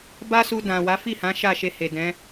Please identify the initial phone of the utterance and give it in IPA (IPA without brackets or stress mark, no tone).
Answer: b